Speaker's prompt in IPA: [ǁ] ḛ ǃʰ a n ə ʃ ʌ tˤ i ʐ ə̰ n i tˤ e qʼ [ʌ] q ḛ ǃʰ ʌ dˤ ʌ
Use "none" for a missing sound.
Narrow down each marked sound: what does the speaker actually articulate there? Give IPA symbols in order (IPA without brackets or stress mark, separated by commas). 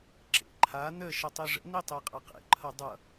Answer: ǁ, ʌ